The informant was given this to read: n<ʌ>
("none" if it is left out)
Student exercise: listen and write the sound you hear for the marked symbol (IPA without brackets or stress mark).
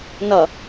ʌ